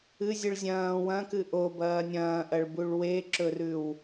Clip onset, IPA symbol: ɨ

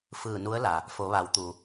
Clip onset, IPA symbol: f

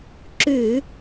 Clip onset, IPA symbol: ǁ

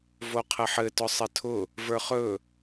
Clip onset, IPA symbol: v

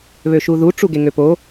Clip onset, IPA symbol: β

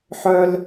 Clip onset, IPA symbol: ħ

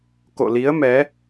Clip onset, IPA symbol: k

